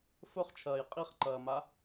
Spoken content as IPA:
f ɵ χ t͡ʃʰ ɐː j qʼ i χ ǃ ɐː m a

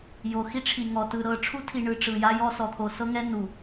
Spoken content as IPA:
j o˨ x i˦ ʈ͡ʂʰ i˨ ŋ ɔ˨ t ɯ˨ ɾ ɤ˨ ʈ͡ʂʰ u˦ tʰ i˨ ɳ ɯ˨ ʈ͡ʂ ɯ˨ j a˦ j ɔ˦ s ɔ˨ t̪ʰ o˨ s ɤ˦ ŋ ɛ˦ n u˨

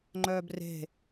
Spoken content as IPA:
ŋ͡ǃ œː b r e̤

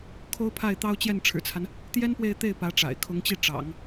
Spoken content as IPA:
kʰ o˥ ʊ̯ pʰ a˥˩ ɪ̯ t̪ ɑ˥ ʊ̯ t͡ɕ j ɛ˥˩ n ʈ͡ʂʰ ɻ̩˨˩ t͡sʰ a˦ n | t̪ j ɛ˥ n p w e˥˧ ɪ̯ t̪ e˥˩ ɪ̯ p ä˧˥ ʈ͡ʂ a̰˨˩ ɪ̯ kʰ ʊ˧˥ ŋ t͡ɕ i˥˩ ʈ͡ʂ ɑ̰˨˩˦ ŋ

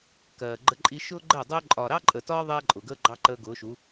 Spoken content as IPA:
k ɜː˨ ɡ͡ǃ ə˧ ǃʼ i˧ ʃ ʊː˦ ɡ͡ǃ ɜ˦˨ dˤ ʊː˦ ǃʼ ɒː˨ ɾ ɑ˦ ǃʼ ə˨ t ɒː˦ ðˤ ɛː˦ ǃʼ ʊ˨ ɡ əː˦ ɡ͡ǃ ɑ˦ ǃ əː˧ ɡ ʊː˨˦ ʃ u˨˦

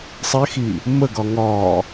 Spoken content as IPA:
sˤ ɪ x i | m ə ɡ ɒ ŋ ɒ

